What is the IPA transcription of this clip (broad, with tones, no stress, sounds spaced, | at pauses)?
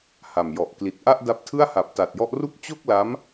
h a˨˩ m j ɔ˨˩ ʔ k l i˨˩ t̚ ʔ a˥˩ ʔ d a˦˥ p̚ tʰ ɯ˥˩ a̯ h a˨˩ p̚ t a˨˩ t̚ j ɔ˦˥ ʔ r u˥˩ k̚ t͡ɕ o˥˩ k̚ l a˦˥ m